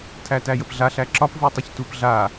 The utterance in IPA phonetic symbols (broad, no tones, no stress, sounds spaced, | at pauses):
tʰ æ t æ j ə p ɮ a ɬ æ ǁ ɒ p v u tˤ ə ç t u p ɮ a